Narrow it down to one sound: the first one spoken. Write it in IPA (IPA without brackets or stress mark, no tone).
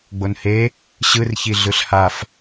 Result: ɡ͡b